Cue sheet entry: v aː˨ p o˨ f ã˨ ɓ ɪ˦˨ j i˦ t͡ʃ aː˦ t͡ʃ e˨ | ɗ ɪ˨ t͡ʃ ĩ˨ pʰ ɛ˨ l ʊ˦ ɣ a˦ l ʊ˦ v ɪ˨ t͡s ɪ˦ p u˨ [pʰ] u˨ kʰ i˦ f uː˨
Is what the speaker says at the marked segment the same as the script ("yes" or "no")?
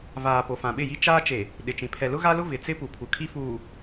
yes